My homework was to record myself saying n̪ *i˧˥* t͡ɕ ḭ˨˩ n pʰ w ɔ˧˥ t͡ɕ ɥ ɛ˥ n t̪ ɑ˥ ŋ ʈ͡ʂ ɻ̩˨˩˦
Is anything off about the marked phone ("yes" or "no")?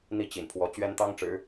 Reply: yes